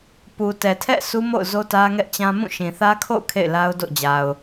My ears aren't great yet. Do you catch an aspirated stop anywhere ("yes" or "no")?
yes